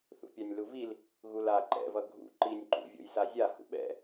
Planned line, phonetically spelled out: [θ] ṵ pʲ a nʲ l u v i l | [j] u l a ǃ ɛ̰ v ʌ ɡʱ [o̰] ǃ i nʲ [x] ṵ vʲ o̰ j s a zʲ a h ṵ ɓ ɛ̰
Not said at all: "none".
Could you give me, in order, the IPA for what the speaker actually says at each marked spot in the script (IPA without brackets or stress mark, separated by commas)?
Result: θ, ɣ, ṵ, ǃ